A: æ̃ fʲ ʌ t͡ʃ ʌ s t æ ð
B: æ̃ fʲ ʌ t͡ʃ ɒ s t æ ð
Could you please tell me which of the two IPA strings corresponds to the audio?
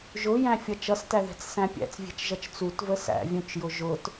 A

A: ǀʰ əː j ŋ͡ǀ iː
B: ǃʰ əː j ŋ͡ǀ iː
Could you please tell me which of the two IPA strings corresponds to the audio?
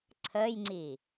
A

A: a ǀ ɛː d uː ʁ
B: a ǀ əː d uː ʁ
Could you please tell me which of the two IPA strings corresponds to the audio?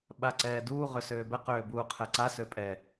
A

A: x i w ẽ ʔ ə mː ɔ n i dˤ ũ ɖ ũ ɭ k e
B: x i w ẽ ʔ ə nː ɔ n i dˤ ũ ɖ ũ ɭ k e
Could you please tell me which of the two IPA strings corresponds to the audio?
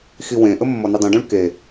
A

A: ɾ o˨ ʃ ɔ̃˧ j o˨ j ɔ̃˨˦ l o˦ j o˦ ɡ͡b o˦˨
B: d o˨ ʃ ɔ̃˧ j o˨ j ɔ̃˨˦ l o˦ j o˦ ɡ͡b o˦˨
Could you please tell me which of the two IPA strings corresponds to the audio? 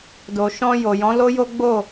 B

